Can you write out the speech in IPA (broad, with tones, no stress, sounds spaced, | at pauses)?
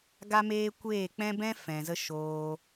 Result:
ɡ a˧ m eː˧ kʷ eː˦˨ k͡p ɛ̃˦ b ɛ̃˦ f ɛ̃˨ z ə˧ ʃ oː˧